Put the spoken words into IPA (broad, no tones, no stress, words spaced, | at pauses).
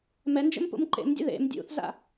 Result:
mɛnd͡ʒə̰mpṵm ǃḛmdʲə̰ ðḛm dʲṵθza̰